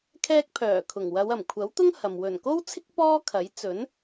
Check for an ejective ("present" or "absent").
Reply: absent